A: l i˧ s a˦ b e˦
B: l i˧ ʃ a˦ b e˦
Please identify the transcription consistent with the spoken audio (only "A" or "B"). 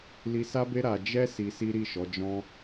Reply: A